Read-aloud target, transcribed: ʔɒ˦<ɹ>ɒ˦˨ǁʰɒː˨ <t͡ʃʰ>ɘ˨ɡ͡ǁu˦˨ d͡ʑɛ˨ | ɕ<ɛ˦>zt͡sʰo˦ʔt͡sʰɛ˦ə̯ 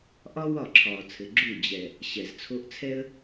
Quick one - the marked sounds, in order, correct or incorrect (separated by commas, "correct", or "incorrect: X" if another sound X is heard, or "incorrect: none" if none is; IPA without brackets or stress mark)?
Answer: incorrect: w, incorrect: t͡sʰ, incorrect: ɛ˨